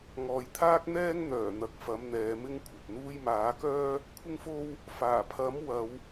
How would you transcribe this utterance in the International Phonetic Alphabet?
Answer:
ŋɔː˨jt̪ʰaː˥k̚n̪ɛː˥ŋ n̪œː˨˩ n̪ɐ˨˥k̚fɐ˨˥m n̪ɛː˨˧mɪ˥ŋkʷʰɐ˨p̚n̪uː˥j maː˨˥kœː˥ | kʷʰɪ˥ŋfo˥w | faː˨˩pʰɐ˨˥m wɐ˨˧w

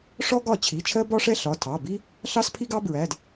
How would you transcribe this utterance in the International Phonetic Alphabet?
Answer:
ʂɔ˥ɡɒ˥˩ t͡ɕʰi˩˧˩t͡ʃʰɜ˥bɒ˥ʂɛ˥ ɬɒ˩˧˩tʰɑ˩˧˩ bi˥ | ɬɑ˥spʰi˥ɡɑ˥bɹæ˩˧˩d

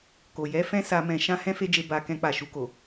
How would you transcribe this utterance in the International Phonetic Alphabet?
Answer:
ko˨jɛ˧ fɛ̃˦sa˧mɛ̃˧ ʃã˦hɛ̃˦fe˦d͡ʒe˧ ba˧ kɛ̃˧k͡pa˨ʃu˧ko˨

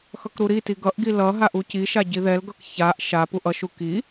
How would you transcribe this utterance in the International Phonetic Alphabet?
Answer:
xʌkɾuɾiti ɡʌʔɡi lʌ ɦaʔuciʃa ɟiðɛlɡʌk çaʔ ʃapuʔ ʌʃu ki

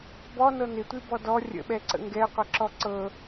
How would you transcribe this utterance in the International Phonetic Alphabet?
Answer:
bɔnɤ nɪtʷibɔ dɔ rʲə̰ɓɛǀə̰ ŋɡɛqʷɛǁɔ ǀɤ

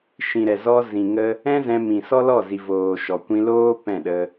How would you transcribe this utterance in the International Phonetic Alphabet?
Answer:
ʃĩ˨ɾɛ˨ zɔ˧ zĩ˨ŋə˧ | ɛ̃˦zɛ̃˧ mĩ˨sɔ˦lɔ˦˨zi˨ voː˨ʃɔ˨kʷĩ˧loː˦ pɛ̃˦˨ɗə˧

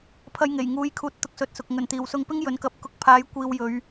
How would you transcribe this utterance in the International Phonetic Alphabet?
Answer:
pʰɐ˧jŋe˨˩jŋuː˨˧jkʰuː˨t̚ t̪ʊ˧k̚sɵ˨˥t̚sʊ˨k̚ ŋɵ˨˩nt̪iː˨˩wsʊ˧ŋpɪ˥ŋ jɵ˨˥nkɐ˨˥p̚ kʊ˧k̚pʰaː˨˧j kʷiː˧wjɵ˨˧ɥ

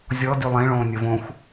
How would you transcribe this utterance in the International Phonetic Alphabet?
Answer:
zʲɔ dylˠẽɭõː nʲəːvõxʷ

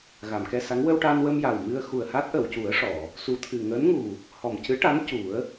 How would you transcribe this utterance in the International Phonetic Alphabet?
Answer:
ɣa˨˩˨mkɛ˧sa˧˥ŋ wə˧wʈa˧nwə˧m ja˨˩wmɨ˧ə̯ xu˨˩ə̯ha˦˥t̚ʔə˨˩˨wcu˨˩˦ə̯ ʂɔ˨˩˨ | su˨˩t̪ʰɨ˨˩ŋəː˧˥nŋu˨˩ | hɔ˨˩mcɨ˧˥ʈa˧˥n cu˨˩˦ə̯

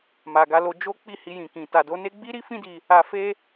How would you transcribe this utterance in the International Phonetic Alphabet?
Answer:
ma˨ɡa˧lo˧ d͡ʒo˦ k͡pi˦˨hi˧jĩ˨kĩ˨ ta˨do˨˦ne˦ ɡ͡bi˦ɾi˦fĩ˦di˧ | a˧ fe˦

